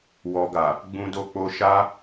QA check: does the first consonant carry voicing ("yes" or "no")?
yes